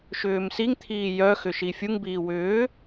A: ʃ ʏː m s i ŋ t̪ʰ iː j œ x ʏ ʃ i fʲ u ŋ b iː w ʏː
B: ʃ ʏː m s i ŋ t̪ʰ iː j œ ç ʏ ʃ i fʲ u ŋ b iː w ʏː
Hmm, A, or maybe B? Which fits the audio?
A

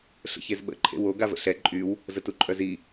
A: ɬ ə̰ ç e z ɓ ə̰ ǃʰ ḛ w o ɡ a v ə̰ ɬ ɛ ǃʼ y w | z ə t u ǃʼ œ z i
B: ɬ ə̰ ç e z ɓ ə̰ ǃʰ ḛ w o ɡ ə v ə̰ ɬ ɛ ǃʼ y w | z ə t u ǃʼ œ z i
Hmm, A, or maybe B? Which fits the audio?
A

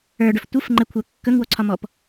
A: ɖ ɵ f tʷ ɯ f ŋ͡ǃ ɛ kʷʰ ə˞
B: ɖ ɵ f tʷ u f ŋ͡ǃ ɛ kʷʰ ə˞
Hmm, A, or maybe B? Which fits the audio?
A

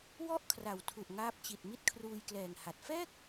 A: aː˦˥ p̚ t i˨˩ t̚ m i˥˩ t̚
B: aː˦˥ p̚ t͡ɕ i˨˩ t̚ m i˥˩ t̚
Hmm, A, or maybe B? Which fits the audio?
B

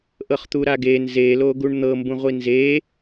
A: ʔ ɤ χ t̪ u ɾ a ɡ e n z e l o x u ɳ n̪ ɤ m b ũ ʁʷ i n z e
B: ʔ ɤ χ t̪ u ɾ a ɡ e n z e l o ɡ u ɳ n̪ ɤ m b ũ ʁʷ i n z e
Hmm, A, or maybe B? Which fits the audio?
B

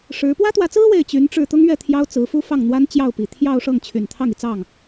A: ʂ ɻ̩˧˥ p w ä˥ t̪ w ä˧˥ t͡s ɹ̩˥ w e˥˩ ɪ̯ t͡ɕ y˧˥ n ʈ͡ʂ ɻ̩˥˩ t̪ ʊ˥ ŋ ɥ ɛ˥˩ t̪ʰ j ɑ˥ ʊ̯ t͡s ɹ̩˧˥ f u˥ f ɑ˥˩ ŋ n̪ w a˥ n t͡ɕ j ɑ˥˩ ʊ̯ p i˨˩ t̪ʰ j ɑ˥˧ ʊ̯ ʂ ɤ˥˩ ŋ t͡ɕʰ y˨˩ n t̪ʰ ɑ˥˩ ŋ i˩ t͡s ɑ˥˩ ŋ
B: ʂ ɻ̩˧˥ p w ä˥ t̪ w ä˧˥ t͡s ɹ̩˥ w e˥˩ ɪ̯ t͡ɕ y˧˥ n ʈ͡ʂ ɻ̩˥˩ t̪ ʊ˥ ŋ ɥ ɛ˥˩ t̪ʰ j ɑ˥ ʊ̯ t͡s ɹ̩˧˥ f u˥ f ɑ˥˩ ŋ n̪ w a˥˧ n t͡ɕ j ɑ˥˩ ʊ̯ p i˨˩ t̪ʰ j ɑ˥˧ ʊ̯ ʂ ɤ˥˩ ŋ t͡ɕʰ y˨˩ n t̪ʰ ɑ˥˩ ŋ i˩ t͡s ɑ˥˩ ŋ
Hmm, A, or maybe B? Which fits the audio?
A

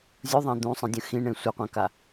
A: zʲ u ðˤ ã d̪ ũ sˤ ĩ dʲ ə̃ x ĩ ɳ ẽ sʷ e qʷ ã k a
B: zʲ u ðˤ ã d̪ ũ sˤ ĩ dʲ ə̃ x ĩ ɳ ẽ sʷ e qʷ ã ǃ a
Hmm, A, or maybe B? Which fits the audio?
A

